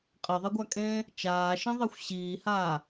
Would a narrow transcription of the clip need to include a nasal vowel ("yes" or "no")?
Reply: yes